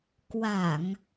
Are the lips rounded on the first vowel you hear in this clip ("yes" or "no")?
no